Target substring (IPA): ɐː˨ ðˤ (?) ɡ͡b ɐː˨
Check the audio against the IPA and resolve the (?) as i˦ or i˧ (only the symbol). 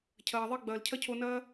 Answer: i˧